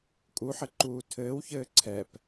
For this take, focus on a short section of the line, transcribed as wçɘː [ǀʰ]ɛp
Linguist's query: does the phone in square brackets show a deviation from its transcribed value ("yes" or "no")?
no